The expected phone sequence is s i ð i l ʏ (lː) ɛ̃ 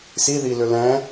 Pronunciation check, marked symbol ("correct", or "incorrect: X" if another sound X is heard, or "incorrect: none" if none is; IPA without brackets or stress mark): incorrect: l